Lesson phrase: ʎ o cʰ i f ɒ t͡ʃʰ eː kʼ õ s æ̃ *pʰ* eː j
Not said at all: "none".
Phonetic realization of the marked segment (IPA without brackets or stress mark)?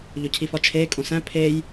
pʰ